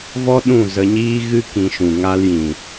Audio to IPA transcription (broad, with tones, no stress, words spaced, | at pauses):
vɔ˦ ɗũ˦˨zə˧ɲiː˦ɣɨ˦ kĩ˧ʃũ˨ ŋa˧ljĩ˨